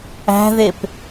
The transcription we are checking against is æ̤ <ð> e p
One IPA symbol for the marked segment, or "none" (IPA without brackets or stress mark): ð